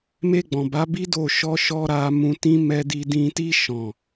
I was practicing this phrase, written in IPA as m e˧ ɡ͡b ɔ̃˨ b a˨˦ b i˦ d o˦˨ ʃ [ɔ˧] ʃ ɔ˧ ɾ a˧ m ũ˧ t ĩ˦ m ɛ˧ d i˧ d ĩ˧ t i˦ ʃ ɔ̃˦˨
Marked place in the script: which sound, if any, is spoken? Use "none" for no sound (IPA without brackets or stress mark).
ɔ˧